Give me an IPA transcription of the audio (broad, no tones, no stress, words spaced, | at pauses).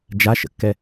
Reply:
d͡ʒaʃə̰kːɛ